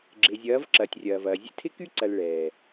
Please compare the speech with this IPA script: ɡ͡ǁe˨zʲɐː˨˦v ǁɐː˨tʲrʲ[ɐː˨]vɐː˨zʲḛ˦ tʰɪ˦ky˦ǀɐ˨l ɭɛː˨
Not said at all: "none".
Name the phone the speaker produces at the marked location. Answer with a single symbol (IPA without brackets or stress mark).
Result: ɐː˨